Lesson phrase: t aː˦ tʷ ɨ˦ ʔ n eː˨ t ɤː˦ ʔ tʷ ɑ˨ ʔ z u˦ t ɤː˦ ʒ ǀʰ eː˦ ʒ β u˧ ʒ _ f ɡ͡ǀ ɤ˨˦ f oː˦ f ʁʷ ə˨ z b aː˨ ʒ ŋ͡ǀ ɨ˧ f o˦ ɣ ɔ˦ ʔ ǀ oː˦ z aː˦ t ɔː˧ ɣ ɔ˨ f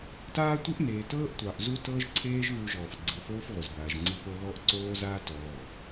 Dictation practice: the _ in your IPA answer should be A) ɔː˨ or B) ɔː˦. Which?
A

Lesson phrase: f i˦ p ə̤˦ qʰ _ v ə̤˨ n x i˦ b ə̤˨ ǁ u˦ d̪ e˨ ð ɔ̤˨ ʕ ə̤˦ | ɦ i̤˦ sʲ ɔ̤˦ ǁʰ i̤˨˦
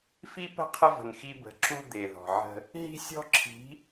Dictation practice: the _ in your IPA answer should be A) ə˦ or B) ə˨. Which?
A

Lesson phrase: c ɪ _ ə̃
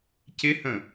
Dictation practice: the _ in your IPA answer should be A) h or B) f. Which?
A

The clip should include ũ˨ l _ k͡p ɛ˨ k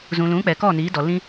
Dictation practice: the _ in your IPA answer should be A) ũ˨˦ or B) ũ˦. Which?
A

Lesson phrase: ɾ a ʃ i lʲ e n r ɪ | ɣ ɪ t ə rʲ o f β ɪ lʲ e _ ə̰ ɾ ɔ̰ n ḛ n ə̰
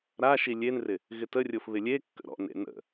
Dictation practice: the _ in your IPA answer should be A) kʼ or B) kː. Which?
B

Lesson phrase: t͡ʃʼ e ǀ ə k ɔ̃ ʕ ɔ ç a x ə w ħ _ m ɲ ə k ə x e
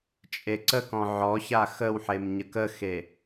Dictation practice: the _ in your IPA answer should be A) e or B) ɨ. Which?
A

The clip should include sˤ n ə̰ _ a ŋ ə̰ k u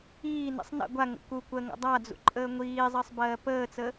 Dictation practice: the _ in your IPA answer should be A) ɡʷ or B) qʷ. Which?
A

